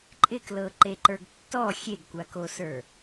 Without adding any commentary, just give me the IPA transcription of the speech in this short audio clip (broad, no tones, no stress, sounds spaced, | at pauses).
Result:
ǃʼ ɪ k l ɤ ǃ e ǃ ə˞ ɡ tː ɔ xʲ e ɡ kʷ a k o s ə˞